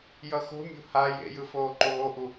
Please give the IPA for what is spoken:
j ʌ x o̤ mʲ o̤ h a j ḛ j ɯ f oː ǃ oː ʔ u

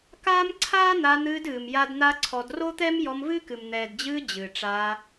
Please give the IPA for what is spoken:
k aː˦ m ǀʰ aː˦ n̪ a˧ n̪ ɨː˧ d ɨː˨ m j a˦ d n̪ a˦ ǀʰ ɔ˧ d r o˦ t̪ ɛ˦ m j ɔ˧ m v ɨː˦ k ɨ˨ m n̪ ɛː˨ d d͡ʑ ɨː˧ d͡ʑ ɨː˨ ʈ͡ʂ aː˧

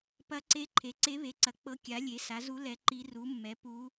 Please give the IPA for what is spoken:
p ɐ˧˥ ǀ e˧˥ ǃʰ e˩˥ ǀ e˧˥ β e˩˥ ǀ ɐ˩˥ k͡p ɤ˧˥ kʲ a˩˥ lʲ e˩˥ s a˩˥ z u˧˥ l ɛ˧˥ ǃ i˧˥ r u˩˥ mː ɛ˩˥ p u˧˥

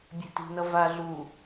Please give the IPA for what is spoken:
bʲ e̤ t i̤ n ʌ v a ɮ u

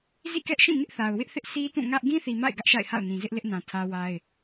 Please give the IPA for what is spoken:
z ḭ˦˨ k ɛ˦ ʔ ʃ ĩ˦˨ ŋ ɪ˦ ʔ θ a˨ ʊ̯ w ɪ˦ ʔ θ ɪ˦ ʔ sʰ i˦ t ũ˦˨ ŋ ä˦ ʔ ɡ ĩ˦ θ i˨ m a̰˦˨ ɪ̯ ɡ ä˦ ʔ ʃ a̰˦˨ ɪ̯ h a̰˦˨ ʊ̯ n ĩ˨ z ɪ˦ ʔ l ɪ˦ ʔ n ã˨ tʰ ä˦ w a˦ ɪ̯

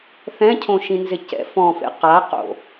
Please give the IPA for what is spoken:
θ ɛ̃ cʰ õ ʃ ĩ n z ɪ c ɛ̰ f ɔ̃ f ḛ q a q o̰

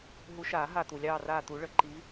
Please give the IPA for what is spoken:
ɦ u˨˦ ʃ aː˨˩˦ ɦ a˧˩ t̪ u˩ lʲ ɑː˧˩ r aː˧˩ t̪ u˨˩˦ ɭ ə˩ ǃ i˨˦

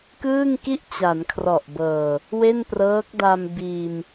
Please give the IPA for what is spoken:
k ɯː˥˩ ŋ k i˥˩ ʔ t͡ɕ a˩˦ n kʰ r ɔ˨˩ ʔ b ɤː˨˩ | w e˥˩ n p r ɤː˦˥ k̚ d a˧ m b iː˧ m

